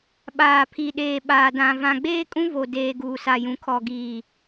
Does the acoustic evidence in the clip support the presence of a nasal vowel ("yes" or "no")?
yes